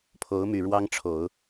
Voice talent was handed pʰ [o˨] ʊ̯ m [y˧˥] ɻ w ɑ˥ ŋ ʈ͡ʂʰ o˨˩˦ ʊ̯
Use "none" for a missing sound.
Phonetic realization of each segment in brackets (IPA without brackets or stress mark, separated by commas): o˧˥, y˨˩